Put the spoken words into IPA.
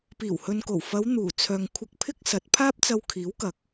p iː˨˩ w h ɵ˨ n k o˨˩ w f ɐ˨˧ w n̪ uː˨˩ t͡sʰ œː˨ ŋ kʷʰ ɪ˧ k̚ pʰ ɪ˥ k̚ s ɐ˨˥ t̚ pʰ aː˥ p̚ t͡s ɐ˧ w kʰ iː˨˥ w k ɐ˨ k̚

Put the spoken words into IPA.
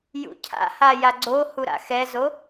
j ṵ cʰ a̰ h a j a ɡ͡ǀ o h u ɾ a̰ x ɛ z o

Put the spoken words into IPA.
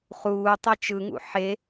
χ uː tˤ ɛ t͡ʃ ɯ ŋ ṵ ħ e

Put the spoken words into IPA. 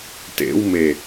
t ḛ w m e

